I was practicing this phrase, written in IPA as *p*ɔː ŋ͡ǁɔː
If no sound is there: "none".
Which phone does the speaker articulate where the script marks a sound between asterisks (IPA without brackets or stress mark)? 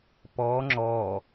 p